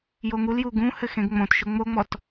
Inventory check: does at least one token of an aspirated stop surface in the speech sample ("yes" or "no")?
no